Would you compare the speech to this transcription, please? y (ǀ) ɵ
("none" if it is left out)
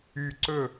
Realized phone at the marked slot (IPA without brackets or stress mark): ǀ